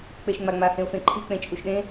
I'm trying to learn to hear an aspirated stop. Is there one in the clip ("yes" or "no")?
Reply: yes